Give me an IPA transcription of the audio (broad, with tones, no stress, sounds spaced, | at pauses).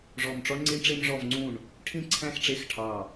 ʐ ɔ˦˨ m ʈ͡ʂ ɔ˥ ɳ ŋ͡ǀ i˥ ɳ ʈ͡ʂ e˥ m ʐ ɔ˦˨ v ŋ͡ǀ ũ˦˨ ɳ | ʈʰ ĩ˦˨ ǀʰ æ̃˦˨ x ʈ͡ʂ e˦˨ x ʈʰ ɑ˦˨